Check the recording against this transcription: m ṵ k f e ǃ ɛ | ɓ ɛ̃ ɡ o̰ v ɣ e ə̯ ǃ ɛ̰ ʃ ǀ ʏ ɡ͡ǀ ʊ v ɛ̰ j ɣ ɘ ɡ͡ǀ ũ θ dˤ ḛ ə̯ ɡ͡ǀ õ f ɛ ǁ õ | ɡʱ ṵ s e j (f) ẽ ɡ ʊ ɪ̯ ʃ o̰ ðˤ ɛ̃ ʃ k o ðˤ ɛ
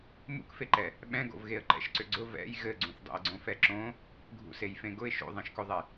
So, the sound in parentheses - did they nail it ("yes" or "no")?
yes